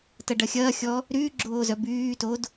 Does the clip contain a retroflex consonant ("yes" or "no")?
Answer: yes